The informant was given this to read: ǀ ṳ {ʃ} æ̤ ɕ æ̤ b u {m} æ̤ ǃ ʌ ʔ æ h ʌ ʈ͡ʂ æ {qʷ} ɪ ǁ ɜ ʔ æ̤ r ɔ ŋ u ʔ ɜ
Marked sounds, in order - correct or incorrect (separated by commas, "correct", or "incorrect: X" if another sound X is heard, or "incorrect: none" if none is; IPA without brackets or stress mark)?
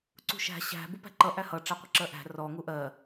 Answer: correct, incorrect: p, correct